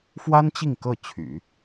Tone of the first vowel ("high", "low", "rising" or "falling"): high